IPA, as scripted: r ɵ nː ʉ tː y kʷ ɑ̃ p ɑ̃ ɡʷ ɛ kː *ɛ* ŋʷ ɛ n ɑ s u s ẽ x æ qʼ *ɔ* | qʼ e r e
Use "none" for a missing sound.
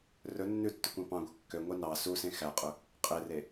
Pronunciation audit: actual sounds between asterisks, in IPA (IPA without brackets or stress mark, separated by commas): ø, ɵ